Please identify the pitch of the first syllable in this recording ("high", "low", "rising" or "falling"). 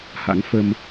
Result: rising